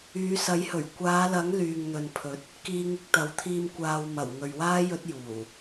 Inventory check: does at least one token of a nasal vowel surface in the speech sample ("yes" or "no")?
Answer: no